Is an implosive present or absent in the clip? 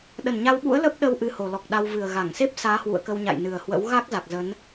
present